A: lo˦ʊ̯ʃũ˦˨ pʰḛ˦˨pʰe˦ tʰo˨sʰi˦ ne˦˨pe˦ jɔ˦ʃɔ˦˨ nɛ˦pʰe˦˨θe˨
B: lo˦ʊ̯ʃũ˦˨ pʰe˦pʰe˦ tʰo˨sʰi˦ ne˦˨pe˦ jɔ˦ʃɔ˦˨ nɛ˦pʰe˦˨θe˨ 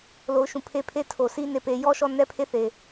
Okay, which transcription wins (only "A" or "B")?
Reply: B